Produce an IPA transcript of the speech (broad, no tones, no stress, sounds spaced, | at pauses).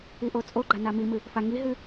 i ʔ o t͡sʼ o ɡ͡ǃ a n a m i m ɨ | f a ŋ i ɦ ɨ